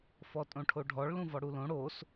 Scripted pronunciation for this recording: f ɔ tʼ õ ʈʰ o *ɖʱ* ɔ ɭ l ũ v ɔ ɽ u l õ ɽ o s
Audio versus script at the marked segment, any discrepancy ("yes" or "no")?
no